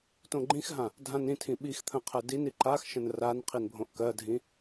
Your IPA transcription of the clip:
tõɡ͡ǃĩxɦã | dʱãnĩtʰĩ ɓix t̪ʰə̃qʰɜdini ǃaxʃə̃n ran qʰinbʱõʔkɜdʱĩ

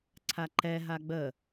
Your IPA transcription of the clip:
ǀʰaǃɛ ɦaɡ͡bə

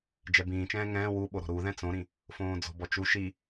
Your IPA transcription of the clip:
d͡ʒɛbĩːt͡ʃɛ̃ː ŋɛ̃ː wuɓo ɾɔ̤ɾu ðɛ̃t͡sõɾĩ | fõːd͡zɔ̤bɔt͡ʃu ʃi

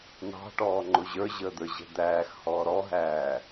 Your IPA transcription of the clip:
n̪ɑ̤ʈɔːŋ͡ǃʊ ʑə˞ʑəːd̪ə˞ʑɛ̤ d̪æːxhɔː ɾɔɦæː

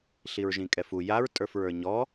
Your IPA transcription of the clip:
ɬiɹʒĩkʼɛfu jaɹ tʼə˞fɹə˞ɲɔ

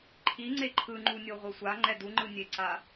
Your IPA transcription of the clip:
ǃʰiŋ͡ǀe ǃʰɯŋ͡ǃunʲo ʁʷʌsʷa ŋ͡ǃɛduŋ͡ǃɯ nʲeǀa

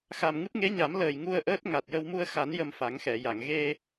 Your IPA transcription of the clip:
xa˨˩mŋɨ˦˥p̚ŋe˧˥ɲa˨˩˦m ləː˨˩j ŋu˧ə̯ʔəː˦˥t̚ ŋa˨˩t̚jə˧w mu˧ə̯xa˨˩˦n jə˧mfa˨˩˦ŋxɛ˨˩˨ja˨˩˨ŋ ɣe˧

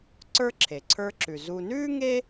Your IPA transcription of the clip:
ǀə˞˥ǁʰe˩ǀʰə˞˦ǁʉ˩ zu˨nʉː˥ ŋe˥

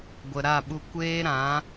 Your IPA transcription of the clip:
ɡʷə˨ɾa˦˨ɓu˧ kʷeː˦ɾã˨˦

